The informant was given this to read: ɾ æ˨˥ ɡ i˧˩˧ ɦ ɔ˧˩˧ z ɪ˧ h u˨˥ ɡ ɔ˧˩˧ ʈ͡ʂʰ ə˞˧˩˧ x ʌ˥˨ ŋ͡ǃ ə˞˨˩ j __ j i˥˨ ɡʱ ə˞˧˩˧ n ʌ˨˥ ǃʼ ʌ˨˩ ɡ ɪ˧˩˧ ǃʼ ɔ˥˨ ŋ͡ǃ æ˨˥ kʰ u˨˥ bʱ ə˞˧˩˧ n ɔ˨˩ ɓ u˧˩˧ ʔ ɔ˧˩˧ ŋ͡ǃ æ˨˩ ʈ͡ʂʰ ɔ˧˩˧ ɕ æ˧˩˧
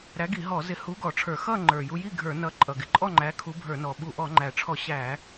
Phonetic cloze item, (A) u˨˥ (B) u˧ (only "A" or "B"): B